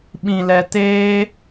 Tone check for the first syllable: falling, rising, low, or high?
low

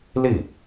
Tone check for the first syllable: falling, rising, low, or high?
falling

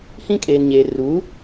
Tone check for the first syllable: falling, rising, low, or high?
high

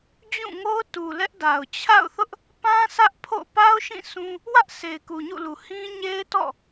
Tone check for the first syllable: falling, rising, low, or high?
falling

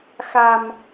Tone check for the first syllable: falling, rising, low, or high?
low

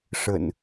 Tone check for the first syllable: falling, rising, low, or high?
low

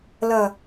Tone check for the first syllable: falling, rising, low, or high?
low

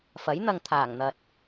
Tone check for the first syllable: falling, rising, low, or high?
rising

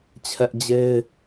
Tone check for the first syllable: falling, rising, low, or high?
high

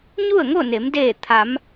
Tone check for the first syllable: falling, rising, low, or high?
falling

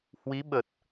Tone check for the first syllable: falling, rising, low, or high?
rising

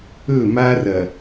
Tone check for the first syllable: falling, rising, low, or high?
falling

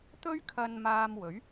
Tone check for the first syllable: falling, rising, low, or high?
high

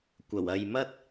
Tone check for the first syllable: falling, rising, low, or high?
low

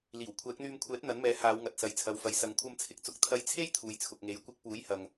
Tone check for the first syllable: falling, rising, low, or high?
low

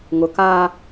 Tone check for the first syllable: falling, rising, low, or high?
low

